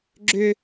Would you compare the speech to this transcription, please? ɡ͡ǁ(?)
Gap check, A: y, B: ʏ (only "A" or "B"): B